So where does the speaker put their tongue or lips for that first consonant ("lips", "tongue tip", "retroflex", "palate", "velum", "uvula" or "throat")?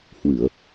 throat